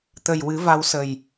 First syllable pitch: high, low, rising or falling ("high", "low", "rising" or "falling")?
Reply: low